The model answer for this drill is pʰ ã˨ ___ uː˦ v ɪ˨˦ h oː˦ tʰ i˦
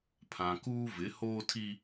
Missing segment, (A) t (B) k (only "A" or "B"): B